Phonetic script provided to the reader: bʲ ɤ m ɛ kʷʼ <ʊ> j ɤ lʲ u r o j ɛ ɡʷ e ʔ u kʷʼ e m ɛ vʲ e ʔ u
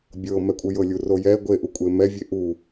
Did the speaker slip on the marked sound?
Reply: yes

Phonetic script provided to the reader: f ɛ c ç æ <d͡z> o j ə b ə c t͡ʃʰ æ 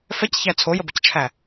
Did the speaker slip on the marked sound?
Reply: yes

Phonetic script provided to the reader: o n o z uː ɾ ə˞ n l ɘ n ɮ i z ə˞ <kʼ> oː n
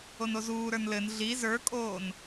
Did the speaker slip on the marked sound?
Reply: no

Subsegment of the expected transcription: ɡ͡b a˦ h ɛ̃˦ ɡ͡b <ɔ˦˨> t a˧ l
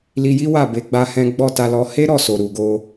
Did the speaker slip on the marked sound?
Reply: no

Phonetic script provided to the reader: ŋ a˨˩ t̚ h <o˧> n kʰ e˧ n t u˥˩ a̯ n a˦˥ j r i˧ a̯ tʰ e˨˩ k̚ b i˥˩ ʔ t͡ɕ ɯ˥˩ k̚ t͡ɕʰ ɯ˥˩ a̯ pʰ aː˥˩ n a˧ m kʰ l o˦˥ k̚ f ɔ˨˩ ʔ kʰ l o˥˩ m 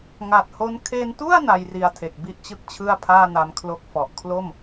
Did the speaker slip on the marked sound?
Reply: yes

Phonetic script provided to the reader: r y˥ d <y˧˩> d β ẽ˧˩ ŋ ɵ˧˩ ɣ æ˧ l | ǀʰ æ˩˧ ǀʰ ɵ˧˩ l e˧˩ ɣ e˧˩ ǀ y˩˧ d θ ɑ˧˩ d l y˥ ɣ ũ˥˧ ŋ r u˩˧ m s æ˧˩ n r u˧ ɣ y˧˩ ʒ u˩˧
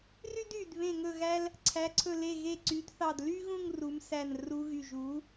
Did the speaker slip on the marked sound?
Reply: no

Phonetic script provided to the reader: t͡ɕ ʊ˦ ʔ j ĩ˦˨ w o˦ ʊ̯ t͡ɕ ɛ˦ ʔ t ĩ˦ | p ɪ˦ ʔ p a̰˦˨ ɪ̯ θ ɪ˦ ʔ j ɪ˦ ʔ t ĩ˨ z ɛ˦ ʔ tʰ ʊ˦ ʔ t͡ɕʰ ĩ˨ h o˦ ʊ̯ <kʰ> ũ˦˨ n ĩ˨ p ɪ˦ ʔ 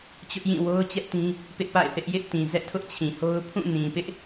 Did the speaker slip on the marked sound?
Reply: yes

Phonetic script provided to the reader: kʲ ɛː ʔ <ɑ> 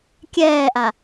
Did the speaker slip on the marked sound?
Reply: yes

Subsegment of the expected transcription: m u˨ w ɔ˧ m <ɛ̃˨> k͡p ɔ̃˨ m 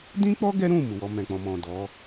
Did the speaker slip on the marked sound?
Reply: no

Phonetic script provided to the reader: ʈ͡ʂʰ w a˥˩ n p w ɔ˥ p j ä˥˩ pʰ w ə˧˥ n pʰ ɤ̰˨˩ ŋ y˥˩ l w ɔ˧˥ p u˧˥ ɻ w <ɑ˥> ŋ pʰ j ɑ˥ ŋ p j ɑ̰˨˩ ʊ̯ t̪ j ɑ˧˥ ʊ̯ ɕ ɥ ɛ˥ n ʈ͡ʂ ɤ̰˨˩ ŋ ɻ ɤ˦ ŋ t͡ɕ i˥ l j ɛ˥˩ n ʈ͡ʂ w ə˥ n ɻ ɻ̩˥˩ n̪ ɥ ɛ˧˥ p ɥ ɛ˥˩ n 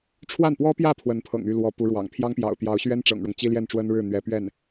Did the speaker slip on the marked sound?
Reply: yes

